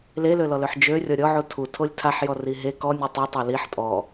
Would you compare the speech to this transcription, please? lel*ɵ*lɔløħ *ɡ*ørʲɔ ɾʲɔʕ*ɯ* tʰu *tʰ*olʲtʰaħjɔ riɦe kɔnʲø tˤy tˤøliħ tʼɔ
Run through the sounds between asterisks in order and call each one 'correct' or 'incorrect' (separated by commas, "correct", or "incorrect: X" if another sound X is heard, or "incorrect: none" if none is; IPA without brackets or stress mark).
incorrect: ø, incorrect: d͡ʒ, incorrect: u, correct